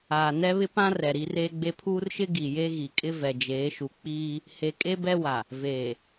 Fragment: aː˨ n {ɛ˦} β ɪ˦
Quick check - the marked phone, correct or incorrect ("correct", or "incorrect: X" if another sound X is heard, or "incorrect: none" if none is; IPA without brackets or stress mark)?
correct